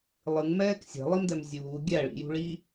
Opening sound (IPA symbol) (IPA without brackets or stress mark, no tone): lˠ